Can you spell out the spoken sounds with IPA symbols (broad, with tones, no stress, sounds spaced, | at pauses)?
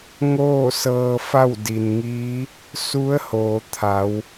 ŋ oː˥˨ s ɤː˧ f a˥˨ w d i˩ n ŋ iː˧˥ | s u˧˥ ə̯ h oː˩ t̪ʰ a˩˧ w